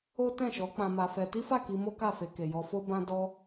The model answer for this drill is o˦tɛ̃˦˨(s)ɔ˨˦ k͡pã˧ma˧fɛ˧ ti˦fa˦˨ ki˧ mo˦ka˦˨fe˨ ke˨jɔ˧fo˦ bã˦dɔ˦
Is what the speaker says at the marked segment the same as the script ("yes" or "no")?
no